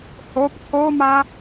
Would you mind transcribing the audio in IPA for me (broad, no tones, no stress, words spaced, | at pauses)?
hop kʰoma